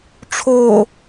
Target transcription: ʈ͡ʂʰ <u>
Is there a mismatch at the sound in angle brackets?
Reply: yes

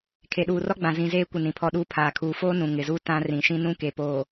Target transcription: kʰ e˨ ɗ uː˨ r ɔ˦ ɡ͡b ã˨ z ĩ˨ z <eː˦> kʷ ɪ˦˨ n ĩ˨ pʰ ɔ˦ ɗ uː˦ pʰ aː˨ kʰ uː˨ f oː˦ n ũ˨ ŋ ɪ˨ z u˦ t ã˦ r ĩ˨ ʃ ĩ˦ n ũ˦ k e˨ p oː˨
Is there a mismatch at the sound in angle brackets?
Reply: no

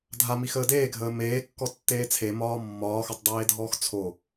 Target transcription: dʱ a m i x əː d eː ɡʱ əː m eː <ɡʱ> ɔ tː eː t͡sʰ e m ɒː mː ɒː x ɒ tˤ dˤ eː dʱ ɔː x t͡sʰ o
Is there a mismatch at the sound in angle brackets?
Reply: yes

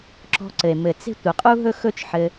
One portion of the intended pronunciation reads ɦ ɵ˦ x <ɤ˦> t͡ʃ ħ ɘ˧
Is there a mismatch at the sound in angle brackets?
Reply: yes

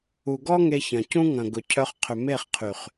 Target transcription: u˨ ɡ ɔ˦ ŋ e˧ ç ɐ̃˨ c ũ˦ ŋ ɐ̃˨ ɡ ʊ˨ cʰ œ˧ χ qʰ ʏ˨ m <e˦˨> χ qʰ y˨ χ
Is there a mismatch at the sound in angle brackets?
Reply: no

